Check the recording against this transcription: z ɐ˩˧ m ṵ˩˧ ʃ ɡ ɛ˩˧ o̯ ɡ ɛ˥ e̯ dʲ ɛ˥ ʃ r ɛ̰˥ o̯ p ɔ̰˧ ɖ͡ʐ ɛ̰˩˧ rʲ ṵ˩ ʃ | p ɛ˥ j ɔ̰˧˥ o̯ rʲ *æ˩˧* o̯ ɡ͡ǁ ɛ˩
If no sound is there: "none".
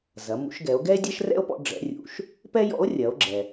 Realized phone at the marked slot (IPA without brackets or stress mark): ɐ˩˧